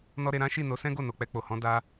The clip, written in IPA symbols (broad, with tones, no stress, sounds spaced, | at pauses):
n ɔ˦ ɾ e˧ ɾ ã˦ ʃ i˦˨ n o˨˦ s ɛ̃˦ ɡ o˦˨ n o˨ k͡p ɛ˧ k͡p o˨ h ɔ̃˨˦ d a˧